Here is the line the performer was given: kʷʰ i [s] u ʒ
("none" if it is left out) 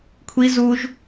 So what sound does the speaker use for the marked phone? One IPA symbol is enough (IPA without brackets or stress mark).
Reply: z